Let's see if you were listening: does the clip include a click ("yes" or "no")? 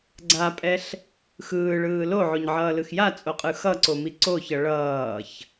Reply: yes